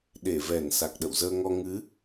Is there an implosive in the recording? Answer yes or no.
yes